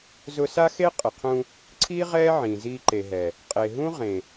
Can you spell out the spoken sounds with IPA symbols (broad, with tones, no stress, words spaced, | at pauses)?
zʊ˧sa˦xe˦ qʼɪ˨qʰũ˧ | ǀʰiː˦ ʁɛː˦ʕĩː˨ziː˧ ǃe˨ɦɛ˨ | qʼe˨ɦũ˦ ʁẽ˨